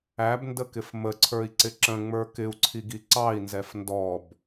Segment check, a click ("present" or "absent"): present